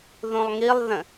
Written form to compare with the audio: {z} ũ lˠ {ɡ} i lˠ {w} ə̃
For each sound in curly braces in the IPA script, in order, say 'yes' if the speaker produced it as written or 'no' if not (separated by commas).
no, no, no